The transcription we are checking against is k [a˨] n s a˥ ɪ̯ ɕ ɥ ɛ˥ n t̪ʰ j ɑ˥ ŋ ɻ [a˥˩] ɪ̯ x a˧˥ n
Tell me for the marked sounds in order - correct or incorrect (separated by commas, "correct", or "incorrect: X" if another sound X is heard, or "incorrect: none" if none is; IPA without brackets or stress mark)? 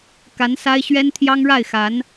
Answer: incorrect: a˧˥, correct